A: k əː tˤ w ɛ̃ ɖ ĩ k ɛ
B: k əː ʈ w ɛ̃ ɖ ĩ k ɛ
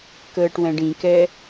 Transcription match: B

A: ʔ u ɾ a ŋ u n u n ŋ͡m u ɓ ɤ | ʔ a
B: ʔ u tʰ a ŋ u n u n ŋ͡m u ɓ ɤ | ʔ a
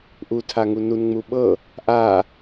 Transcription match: B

